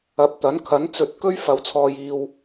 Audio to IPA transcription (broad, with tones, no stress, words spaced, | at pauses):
ɐ˨˥p̚t̪ɐ˨˥nkʰɐ˨˥n t͡sɵ˨˥t̚ kɵ˥ɥ fɐ˧wt͡sʰɔː˧jiː˧w